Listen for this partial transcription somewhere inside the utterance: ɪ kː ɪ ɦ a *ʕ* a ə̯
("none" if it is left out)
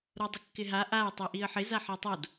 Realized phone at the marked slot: ʔ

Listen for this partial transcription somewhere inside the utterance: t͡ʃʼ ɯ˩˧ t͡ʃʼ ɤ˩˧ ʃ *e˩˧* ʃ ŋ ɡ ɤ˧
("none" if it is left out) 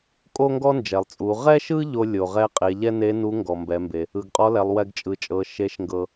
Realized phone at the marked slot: e˧˥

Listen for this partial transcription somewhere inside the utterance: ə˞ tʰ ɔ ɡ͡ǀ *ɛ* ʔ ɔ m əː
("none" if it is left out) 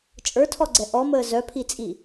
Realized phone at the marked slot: ɛ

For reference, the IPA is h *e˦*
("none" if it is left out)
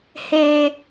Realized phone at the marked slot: e˦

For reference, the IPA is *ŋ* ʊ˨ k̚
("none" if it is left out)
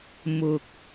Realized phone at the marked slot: m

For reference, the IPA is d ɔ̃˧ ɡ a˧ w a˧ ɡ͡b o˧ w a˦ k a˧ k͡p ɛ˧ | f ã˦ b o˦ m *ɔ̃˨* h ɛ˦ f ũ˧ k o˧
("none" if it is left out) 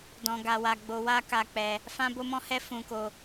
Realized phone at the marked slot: ɔ̃˦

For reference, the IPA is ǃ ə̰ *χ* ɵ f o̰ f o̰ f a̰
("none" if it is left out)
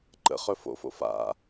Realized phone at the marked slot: χ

